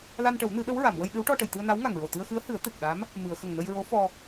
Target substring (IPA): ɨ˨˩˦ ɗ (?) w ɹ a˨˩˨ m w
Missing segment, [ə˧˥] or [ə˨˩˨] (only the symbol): ə˧˥